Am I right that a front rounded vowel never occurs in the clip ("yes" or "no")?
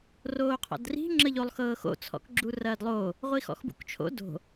yes